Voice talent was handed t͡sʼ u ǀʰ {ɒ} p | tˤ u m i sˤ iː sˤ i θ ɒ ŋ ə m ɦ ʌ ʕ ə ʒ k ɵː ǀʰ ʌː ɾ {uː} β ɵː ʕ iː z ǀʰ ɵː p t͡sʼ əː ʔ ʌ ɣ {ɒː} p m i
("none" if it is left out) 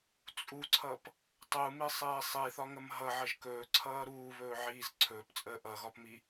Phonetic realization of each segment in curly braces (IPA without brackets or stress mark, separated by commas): ʌ, uː, ɒ